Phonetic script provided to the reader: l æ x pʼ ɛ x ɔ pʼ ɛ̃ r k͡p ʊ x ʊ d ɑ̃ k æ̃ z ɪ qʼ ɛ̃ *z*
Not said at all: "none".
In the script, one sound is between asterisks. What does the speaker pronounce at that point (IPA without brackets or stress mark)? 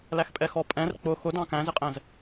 z